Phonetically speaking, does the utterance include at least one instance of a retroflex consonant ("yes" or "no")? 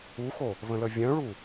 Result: yes